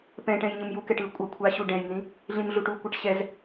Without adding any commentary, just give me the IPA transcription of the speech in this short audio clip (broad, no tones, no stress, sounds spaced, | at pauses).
p ɛ̃ ʈ ɛ̃ j ɲ ɯ m j u k ɛ ʈ ɯ kʷʼ ʌ kʷʰ a ɕ u ɖ ɛ̃ j n ĩ | ɮ ĩ m ɮ u ʈ u kʷ ɛ ʈ ɕ ɛ z